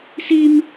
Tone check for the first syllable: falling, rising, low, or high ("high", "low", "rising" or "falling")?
high